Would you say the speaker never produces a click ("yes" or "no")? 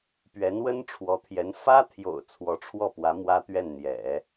yes